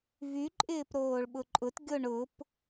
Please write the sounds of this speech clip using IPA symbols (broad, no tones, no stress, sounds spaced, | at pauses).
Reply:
v y ǃʼ ɪː p ɾ oː ɭ ɓ ʊ ǃʼ ʊ t ɡʲ o ɳ ʊ p